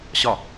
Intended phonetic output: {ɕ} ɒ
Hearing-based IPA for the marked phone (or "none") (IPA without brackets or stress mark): ɕ